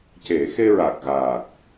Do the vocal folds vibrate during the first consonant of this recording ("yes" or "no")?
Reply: no